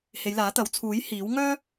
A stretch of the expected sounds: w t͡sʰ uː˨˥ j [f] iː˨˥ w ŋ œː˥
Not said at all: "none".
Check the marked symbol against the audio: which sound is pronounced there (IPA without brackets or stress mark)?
h